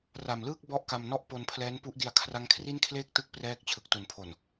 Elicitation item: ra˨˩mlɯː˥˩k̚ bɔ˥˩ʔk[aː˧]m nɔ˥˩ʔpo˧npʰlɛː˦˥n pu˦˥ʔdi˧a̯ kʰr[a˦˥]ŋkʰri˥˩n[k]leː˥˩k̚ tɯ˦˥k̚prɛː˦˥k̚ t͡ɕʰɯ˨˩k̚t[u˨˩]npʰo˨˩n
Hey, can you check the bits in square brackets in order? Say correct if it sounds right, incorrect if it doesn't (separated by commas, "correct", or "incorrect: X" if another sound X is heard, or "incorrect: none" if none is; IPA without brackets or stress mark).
incorrect: a˧, correct, incorrect: kʰ, correct